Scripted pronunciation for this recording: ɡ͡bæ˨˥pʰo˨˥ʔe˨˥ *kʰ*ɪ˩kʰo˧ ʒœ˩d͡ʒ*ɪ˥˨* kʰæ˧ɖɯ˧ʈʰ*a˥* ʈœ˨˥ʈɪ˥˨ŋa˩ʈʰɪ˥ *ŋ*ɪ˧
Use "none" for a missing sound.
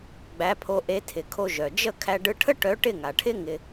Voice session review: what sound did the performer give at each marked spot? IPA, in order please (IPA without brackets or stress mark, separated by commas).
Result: tʰ, ə˥˨, ə˥, ŋ